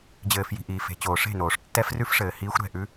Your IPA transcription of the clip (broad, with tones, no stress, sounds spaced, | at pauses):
d͡ʑ ɘː˨ f j i̤˨ ʔ iː˨ f e̤˨ t͡ɕ oː˨ ʂ e̤˦˨ n oː˨ ʂ tː ɛ˦ f r ʉ˦ f ʂ ɘː˨ h iː˦ xʷ ɾ ɛ̤˦˨ ʔ ʉ˦